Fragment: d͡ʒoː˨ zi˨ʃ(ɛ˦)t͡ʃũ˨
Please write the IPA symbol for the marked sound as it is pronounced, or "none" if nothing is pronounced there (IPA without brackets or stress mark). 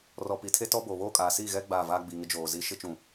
ɪ˦